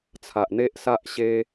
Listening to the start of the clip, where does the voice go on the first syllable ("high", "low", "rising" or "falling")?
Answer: low